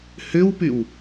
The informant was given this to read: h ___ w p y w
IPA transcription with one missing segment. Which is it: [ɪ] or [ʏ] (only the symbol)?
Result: ʏ